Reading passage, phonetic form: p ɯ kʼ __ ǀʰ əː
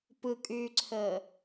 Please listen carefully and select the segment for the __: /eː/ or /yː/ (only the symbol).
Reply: yː